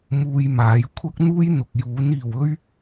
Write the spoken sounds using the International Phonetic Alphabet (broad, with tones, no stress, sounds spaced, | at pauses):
m uː˧ j m aː˨˥ j kʷʰ ɐ˥ k̚ n̪ uː˥ j n̪ ʊ˨ k̚ j uː˨˥ n iː˨ w ɵ˥ ɥ